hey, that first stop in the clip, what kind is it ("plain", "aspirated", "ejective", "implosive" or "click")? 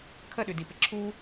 aspirated